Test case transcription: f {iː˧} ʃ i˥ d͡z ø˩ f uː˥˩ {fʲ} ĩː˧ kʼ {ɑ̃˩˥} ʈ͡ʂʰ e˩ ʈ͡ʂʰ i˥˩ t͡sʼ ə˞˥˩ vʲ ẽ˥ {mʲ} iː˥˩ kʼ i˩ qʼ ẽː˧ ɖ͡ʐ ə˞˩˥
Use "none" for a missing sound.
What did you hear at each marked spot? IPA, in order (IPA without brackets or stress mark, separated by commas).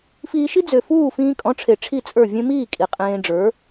iː˧, f, ɔ̃˩˥, m